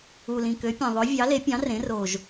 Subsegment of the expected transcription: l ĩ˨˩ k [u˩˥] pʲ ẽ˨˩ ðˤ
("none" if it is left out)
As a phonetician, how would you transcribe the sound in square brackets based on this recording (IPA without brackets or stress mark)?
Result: ø˩˥